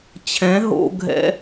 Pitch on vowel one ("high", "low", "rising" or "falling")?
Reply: rising